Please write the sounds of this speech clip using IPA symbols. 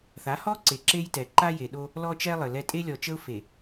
θ a˨˦ h ɔ˦ ǀ e˨ ǁ e˦ j t ɛ˨ ǃ a˦ j e˨ ɗ o˦ | l ɔ˦ t͡ʃ ɛ˦ lˠ ə˨ l ɛ˦ tʼ e˦ lʲ ɔ˨ t͡ʃ ə˦ ʊ̯ f e˨

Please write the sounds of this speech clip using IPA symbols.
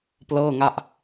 p l ɤː˥˩ ŋ a˥˩ ʔ

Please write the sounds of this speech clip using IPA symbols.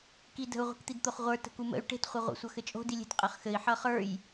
k i d ə̤ u̯ ʁʷ i̤ k t̪ i d t̪ o χ ʁʷ ə˞ t ə̤ k u m ə̰ y̯ ʈ e̤ t χʷ ʌ ʁʷ ə̰ sʷ ʌ x ɘ t͡ʃʼ o̤ d i lʲ e̤ t qʼ ɘ χ x ɘ i̯ ħ ʌ χ ə˞ j

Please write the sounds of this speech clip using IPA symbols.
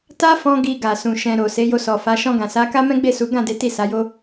t a˦ f ɔ̃˧ ɡ i˧ ɡ a˨ s ũ˨ ʃ ɛ̃˧ ɾ o˨ s e˨˦ j o˧ s ɔ˨ f a˨˦ ʃ ɔ̃˧ ɡ ã˨ s a˨˦ k a˦ m ɛ̃˦ ɡ͡b e˦˨ s u˨˦ ɡ ã˦˨ d e˨˦ t i˦˨ s a˨˦ j o˦

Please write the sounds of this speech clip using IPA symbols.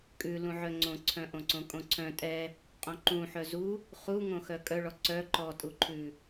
kʼ ʉ l ũ ʕ œ ŋ͡ǀ õ ǀʰ œ̃ ʔ õ ǀ õ kʼ õ ǀʰ œ̃ tʼ ɛ | qʼ õ ǃ ũ ħ œ z u | χ u ŋ õ x œ kʼ œ ɭ ɔ ǀ œ ǃ ɔ tʼ u ǃʰ ʉ

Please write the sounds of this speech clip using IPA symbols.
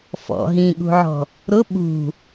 f ɔ̰ ɦ ĩ ɠ ṳ ʕ ɔ̤ | ɾ ʊ ɓ ṳ

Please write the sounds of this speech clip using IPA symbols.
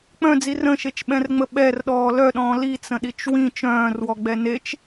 k͡p œ̃ d͡z i r ə̃ ʃ e t͡ʃ ɓ ɛ̃ r ŋ͡m ə ɓ ɛ r ɗ ɔː l œ ɗ ɔ̃ː l i t͡s ə̃ ɗ i t͡ʃ w ĩ t͡ʃ œ̃ː r w ɔ ɡ͡b ɛ n e t͡ʃ

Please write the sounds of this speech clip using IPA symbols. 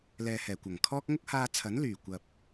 l ɛː˨ h ɛː˨˩ kʷ ɐ˨˩ ŋ kʰ ɔː˥ k̚ ŋ ʊ˥ k̚ h aː˧ t͡sʰ ɐ˨˥ n l yː˨˩ kʷ ɐ˨ p̚

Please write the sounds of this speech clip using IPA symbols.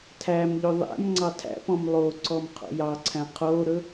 tʰ æ m ʎ ɵ ðˤ æ̰ m ŋ͡ǀ ɑ tʰ æ̰ p ɔ̃ m lˠ o ǀ ɔ m qʰ o̰ j ɑ ǀʰ æ̃ qʰ o ɾ ɵ

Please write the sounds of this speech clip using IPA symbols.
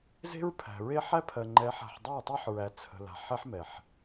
z e̤˦ ɹ pʰ æ̤˨ ɹ e˦ ħ æ˦ pʰ ɜ˨ ŋ͡ǃ ɛ˨˦ ħ a̤˨ ħ dˤ æ˦˨ tˤ ɛ˦ ħ ɹ æ˨ t͡sʰ ə̤˨ l a̤˨ ħ ɛ˦ ħ m ɛ˨ ħ

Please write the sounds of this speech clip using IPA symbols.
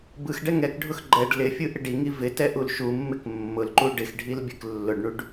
b ɯ x ɖ ɛ ŋ ɛ k ɖʱ ʊ x ɡ͡ǃ ɛ ɖ l ɪ fʲ ɯ ʔ ɪ ɖ i ŋ i v ɪ t ɛ ʔ u l ʃ u mː ɪ k mː ʊ l ǃ u ɖ ɪ x ɖʱ i l bʲ ɯ k lː ʊ ɖ ɳ u ɖ

